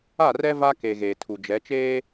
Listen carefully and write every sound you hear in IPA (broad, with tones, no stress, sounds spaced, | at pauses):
a˦˨ r ɛ˦ v a˦ k e˨ ɣ eː˨ tʰ u˨ d͡ʒ ɛ˨˦ t͡ʃ eː˦